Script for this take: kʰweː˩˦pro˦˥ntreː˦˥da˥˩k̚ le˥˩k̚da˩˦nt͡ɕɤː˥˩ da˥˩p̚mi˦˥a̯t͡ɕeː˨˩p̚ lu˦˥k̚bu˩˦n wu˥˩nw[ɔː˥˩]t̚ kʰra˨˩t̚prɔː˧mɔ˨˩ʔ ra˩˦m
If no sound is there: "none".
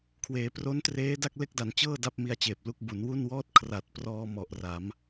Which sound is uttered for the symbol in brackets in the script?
ɔː˥˩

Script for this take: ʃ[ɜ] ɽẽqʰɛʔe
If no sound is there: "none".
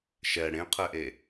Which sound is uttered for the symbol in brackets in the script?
ɛ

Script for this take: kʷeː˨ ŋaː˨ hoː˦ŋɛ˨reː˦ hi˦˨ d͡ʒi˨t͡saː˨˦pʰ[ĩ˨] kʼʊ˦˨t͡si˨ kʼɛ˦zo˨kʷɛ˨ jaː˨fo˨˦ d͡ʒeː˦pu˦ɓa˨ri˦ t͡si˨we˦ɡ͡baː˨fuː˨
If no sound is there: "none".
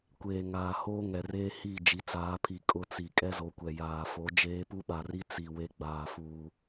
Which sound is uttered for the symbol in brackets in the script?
i˨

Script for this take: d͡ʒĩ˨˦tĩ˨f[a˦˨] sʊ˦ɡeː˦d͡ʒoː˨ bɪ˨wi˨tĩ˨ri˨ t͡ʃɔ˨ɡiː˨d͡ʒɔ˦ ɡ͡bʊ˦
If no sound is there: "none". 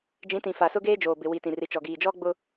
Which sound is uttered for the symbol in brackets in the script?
a˨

